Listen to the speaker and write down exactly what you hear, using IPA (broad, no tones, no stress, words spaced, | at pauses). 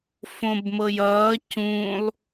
fõbmɤjʌː cũlˠ